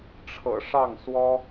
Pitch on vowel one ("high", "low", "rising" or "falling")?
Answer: low